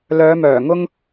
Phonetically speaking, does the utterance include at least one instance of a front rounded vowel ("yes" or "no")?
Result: yes